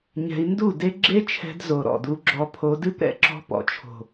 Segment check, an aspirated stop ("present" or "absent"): present